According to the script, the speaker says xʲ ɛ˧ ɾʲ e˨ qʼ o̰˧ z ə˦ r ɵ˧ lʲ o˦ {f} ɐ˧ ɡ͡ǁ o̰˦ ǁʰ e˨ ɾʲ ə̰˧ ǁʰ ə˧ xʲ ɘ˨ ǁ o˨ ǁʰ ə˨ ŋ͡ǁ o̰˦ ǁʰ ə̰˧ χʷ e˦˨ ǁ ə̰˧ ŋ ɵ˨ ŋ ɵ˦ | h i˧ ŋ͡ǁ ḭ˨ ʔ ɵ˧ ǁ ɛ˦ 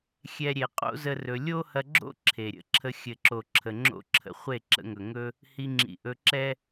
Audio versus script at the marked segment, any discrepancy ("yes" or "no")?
yes